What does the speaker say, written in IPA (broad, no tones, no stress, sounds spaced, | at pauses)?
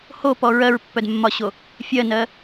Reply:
h o p ɔ ɹ ɜ ɹ pː œ d mː ɒ ɕ o | fʲ ɜ n ɜ